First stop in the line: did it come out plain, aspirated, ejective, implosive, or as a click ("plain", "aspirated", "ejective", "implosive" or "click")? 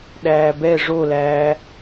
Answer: implosive